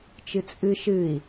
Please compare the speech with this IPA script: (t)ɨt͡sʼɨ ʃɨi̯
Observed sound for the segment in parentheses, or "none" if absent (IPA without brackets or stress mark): t͡ʃ